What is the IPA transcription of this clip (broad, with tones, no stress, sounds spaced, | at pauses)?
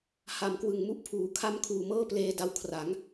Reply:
h a˨˩ m k w ɯ˨˩ ŋ m u˥˩ ʔ pʰ uː˨˩ kʰ a˧ m kʰ uː˨˩ m ɤː˥˩ p l eː˧ d a˧ w kʰ r a˩˦ ŋ